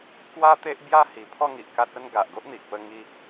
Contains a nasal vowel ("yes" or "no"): no